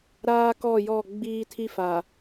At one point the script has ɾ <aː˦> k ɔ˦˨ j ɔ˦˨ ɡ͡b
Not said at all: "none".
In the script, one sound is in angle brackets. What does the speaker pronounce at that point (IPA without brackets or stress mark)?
aː˦